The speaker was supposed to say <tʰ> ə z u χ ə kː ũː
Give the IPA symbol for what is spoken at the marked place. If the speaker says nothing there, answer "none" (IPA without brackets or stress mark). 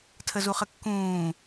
tʰ